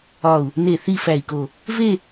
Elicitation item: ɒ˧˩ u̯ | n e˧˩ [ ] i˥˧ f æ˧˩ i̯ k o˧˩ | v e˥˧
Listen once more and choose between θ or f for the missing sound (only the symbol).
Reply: θ